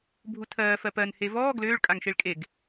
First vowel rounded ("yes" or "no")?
yes